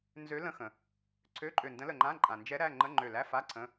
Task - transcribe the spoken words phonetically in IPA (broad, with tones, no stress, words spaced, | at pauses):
nzø˧˥lə̃˧˥˧xə̃˩ | ǀʰø˧˥˧ǃʼø˧˩ndə̃˧˥ lə˧˩ŋ͡ǃã˧˥˧ ǃʼã˩nd͡ʒɛ˧˥ ɾæ˧˥˧ ŋ͡ǃə˧˥˧ŋ͡ǃø˧˩læ˧˥˧fa˧˥˧ ǀʰə̃˧˥˧